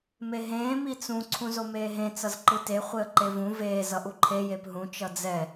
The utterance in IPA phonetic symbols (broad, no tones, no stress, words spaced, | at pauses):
meɦẽː mit͡sũ ǀʰũzomeːɦẽ t͡sʌzǃɯte χʷeə̯ǃevũ veː zʌʔuǃʰe jepɦũ t͡ʃʌd͡zɛ